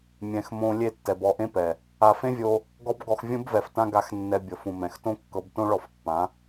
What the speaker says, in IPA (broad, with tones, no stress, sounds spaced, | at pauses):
mʲ ɛ̃˨ x m õ˧ lʲ e˦˨ tː ɛ˨ b ɔ˧ ʔ ẽ˦ p ɛ˨ | a˨ f ẽ˦ vʲ o˧ | ɡ ɔ˦ b ɡ ɔ˧ x vʲ ũ˦ b v ɛ˨ f t ã˦ ɡ a˧ x nː ɛ˧ bʲ ɤ˨ f ũ˨ m ɛ̃˨ x t õ˦ kː ɤ˧ b t õ˦ ɭ ɔ˧ f pː ã˨˦